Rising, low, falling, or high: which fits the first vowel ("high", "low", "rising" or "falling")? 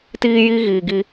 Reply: high